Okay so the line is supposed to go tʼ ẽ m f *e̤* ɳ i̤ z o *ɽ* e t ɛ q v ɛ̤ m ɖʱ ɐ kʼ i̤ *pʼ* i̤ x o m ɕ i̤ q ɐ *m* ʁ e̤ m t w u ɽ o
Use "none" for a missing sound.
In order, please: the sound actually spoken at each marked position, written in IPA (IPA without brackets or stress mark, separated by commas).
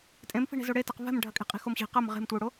i̤, ɽ, qʼ, m